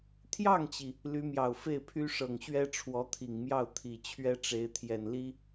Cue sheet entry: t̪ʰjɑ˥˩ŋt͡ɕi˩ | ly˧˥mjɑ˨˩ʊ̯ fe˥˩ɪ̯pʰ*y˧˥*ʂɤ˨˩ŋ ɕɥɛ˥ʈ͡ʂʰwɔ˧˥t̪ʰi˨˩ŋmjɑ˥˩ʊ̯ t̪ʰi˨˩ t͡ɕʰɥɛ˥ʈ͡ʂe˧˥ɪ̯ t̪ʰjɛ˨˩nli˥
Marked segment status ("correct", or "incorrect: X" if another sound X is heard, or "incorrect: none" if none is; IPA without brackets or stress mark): incorrect: y˥